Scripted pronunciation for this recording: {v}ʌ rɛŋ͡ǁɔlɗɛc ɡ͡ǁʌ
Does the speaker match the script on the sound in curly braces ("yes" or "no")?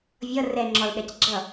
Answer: no